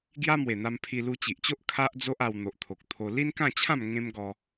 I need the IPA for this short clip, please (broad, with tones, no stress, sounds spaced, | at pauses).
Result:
ɡ j a˦ m w e˨˩ n̪ a˧ m pʰ i˧ l u˧ t͡ɕ i˨ ʔ t͡ɕ o˦ ʔ kʰ a˦ ʔ d͡z o˦ ʔ a˧ w n̪ o˨ ʔ t̪ʰ o˨ k̚ t̪ʰ o˧ l i˦ n k ã˥˧ t͡ɕʰ ã˥˧ m ŋ ẽ˦ m ɡ ɔ˧